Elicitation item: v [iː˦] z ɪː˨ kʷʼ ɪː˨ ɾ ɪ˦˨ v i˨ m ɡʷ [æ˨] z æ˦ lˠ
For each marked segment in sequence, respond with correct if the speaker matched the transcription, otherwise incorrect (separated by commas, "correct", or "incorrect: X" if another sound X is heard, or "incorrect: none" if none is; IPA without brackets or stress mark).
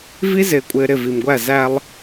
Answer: incorrect: i˦, incorrect: æ˦˨